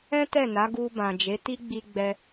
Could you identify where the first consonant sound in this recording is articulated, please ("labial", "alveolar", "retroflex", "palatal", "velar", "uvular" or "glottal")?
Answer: alveolar